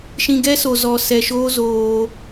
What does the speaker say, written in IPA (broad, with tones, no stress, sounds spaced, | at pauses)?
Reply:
ʃ ĩ˧ ɡ ɛ˦ s o˨ z ɔ˨ s ɛ˨ ʃ oː˧ z oː˧